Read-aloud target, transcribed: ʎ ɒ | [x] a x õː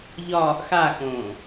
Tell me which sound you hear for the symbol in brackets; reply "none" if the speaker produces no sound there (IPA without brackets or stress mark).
x